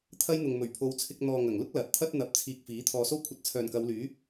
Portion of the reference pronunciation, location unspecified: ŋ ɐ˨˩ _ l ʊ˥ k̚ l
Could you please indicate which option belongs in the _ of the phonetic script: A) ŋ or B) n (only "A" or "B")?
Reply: A